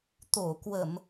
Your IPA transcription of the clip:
t̪o˧˩kwə˧˩˨m

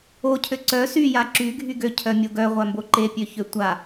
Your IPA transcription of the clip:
ocʰø ǀœ syja ǁyɡʱy ɡøcʰœmʲo ɡœʁʷambo ǃepʲøçø tʷa

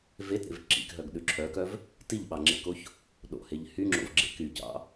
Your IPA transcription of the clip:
vetɾḛv ǁḭkɦœɡɗʉ ǁʰœkœv | tiʎɓɑŋ͡ǁḛkoç | ɗo̰heʎ hyŋ͡ǁo̰vɡ͡ǁḛ kycɑ̰

